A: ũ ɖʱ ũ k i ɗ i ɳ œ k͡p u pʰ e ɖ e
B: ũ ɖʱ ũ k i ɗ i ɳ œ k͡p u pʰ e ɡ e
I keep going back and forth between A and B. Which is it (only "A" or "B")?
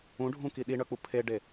A